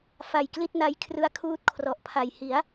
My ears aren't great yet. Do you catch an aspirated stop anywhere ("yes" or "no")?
yes